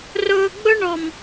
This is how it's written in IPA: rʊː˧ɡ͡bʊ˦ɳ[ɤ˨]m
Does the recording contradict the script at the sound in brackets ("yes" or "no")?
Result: yes